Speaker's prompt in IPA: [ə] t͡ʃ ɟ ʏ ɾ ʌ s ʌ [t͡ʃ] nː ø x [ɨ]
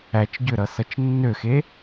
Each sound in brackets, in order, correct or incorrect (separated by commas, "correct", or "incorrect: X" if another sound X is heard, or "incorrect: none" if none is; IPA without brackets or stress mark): incorrect: æ, correct, incorrect: e